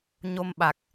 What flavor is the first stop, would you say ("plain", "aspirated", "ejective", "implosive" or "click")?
implosive